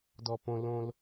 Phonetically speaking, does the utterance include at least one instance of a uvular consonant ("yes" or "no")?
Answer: no